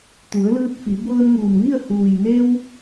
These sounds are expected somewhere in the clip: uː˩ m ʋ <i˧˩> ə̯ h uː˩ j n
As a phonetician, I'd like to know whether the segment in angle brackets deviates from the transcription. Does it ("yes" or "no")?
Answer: yes